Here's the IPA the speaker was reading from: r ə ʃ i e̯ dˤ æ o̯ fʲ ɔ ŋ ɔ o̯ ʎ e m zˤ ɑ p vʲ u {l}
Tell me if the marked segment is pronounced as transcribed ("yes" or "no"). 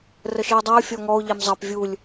no